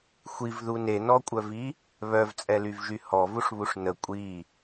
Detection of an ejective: present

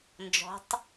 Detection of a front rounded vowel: absent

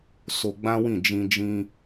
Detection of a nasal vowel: present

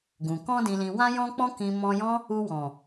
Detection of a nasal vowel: present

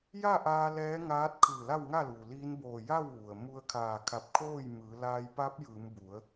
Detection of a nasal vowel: absent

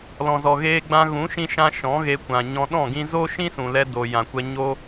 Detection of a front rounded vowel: absent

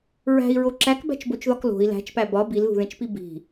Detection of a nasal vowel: present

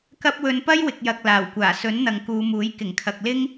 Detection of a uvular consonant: absent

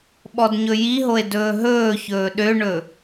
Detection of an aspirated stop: absent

